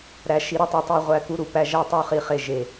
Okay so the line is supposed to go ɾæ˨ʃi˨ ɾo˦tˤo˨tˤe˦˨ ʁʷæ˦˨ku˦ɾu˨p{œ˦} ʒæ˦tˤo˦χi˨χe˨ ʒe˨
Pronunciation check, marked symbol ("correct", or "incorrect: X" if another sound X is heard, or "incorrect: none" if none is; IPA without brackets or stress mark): incorrect: æ˦